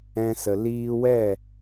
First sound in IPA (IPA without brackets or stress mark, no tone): ɛ̃